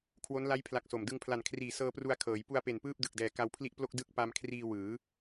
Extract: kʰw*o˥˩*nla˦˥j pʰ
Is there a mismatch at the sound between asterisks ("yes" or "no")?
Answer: yes